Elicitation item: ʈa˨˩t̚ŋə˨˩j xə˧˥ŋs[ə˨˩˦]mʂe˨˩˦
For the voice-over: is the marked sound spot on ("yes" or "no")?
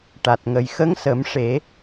yes